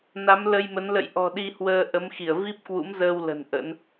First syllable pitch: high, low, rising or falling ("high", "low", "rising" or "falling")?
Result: rising